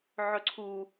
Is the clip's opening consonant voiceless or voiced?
voiced